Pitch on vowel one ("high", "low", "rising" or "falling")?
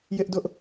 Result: high